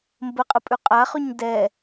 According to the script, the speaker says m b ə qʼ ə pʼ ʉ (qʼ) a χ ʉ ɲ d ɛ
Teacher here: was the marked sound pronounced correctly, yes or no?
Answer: yes